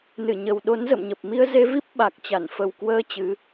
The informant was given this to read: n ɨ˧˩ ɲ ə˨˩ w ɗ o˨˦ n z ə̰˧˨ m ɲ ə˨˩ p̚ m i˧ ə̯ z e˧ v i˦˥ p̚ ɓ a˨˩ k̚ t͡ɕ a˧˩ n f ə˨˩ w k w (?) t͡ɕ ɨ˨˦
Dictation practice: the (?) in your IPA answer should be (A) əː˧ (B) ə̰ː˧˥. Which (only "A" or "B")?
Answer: A